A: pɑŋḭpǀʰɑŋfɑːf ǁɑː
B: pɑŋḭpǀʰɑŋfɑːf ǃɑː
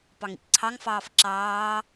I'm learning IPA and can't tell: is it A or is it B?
A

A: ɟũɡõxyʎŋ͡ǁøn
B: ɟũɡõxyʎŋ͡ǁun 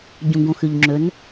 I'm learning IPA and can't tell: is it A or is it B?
A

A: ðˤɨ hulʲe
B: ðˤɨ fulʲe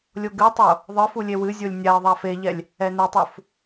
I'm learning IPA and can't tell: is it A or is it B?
B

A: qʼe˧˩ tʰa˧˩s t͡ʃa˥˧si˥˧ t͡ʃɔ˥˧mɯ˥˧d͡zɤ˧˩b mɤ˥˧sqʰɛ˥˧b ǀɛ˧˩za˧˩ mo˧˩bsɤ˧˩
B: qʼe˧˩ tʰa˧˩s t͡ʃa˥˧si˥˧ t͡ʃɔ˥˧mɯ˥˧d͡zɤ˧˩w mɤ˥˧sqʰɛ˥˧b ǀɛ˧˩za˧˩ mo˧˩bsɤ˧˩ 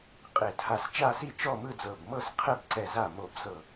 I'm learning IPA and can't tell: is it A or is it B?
A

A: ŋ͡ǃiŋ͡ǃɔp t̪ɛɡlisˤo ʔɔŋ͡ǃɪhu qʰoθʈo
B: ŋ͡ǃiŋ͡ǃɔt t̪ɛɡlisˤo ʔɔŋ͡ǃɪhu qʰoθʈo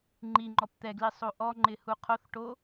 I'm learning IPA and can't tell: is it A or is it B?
A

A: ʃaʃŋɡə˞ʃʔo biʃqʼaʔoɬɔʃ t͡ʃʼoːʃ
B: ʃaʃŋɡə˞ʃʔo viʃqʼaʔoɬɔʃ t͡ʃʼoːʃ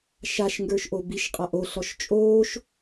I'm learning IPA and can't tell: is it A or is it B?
A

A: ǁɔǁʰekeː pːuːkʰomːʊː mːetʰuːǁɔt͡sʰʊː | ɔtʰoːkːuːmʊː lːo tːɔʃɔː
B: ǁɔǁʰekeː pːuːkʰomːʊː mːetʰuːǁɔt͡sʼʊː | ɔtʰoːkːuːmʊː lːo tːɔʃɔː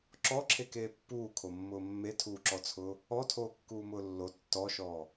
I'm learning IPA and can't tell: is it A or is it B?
A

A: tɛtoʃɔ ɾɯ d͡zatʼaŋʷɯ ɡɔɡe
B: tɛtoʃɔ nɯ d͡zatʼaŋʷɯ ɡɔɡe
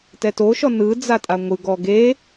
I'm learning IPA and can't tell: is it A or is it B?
B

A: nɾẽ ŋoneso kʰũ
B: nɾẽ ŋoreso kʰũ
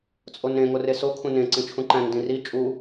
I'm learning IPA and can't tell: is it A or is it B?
B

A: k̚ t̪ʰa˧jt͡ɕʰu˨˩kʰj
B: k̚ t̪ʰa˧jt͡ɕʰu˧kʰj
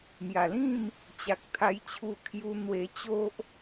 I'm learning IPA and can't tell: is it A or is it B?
B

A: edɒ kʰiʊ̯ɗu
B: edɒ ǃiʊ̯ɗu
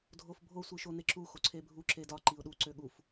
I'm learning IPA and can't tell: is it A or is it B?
B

